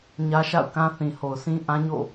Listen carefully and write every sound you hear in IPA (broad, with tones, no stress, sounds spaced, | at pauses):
ɲ ä˦ ʃ a̰˦˨ ʊ̯ k ã˦ θ ĩ˨ h o˨ ʊ̯ sʰ ĩ˦ ʔ ã˦ ɲ o̰˦˨